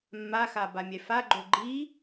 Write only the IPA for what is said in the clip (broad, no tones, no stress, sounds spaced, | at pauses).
mː a x a b a mʲ ɛ f a ɡ͡ǃ o ɡ͡ǃ i